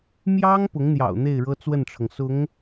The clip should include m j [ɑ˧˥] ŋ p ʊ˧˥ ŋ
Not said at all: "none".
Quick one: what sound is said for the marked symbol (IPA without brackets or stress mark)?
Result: ɑ˥